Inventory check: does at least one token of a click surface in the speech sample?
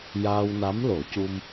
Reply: no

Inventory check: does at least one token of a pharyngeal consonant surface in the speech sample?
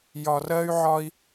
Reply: yes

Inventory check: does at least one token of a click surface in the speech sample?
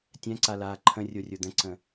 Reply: yes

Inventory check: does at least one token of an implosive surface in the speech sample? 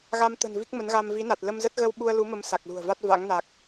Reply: yes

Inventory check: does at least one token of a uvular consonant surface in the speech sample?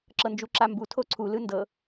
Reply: no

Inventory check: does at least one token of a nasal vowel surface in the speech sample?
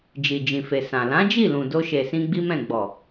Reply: yes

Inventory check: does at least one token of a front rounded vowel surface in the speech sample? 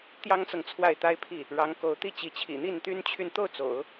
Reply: yes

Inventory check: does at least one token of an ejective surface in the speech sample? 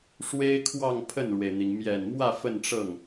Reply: no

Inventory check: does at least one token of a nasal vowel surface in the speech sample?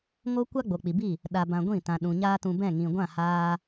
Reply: yes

